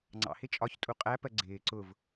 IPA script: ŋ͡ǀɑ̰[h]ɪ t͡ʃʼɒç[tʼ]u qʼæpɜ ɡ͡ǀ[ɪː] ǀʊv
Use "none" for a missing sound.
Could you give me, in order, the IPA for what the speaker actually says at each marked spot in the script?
h, tʼ, ɪː

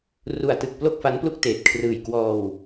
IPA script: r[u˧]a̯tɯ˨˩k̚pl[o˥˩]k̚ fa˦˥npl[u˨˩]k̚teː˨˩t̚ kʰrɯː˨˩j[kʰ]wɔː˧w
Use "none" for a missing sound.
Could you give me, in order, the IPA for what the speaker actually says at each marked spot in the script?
u˨˩, o˥˩, u˥˩, k

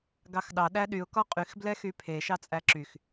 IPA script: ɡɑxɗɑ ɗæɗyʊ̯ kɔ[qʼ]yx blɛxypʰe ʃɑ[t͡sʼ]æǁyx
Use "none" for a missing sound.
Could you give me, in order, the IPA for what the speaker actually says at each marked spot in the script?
qʼ, t͡sʼ

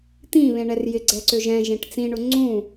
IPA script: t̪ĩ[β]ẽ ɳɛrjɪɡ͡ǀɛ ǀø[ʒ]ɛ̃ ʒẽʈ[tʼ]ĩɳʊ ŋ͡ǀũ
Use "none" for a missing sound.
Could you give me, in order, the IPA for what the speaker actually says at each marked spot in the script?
β, ʒ, t͡s

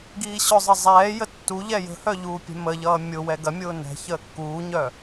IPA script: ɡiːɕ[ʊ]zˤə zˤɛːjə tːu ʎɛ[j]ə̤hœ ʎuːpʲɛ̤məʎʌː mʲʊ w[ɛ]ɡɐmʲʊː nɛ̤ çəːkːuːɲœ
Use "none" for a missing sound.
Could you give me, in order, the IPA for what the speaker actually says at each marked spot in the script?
ʊ, j, ɛ

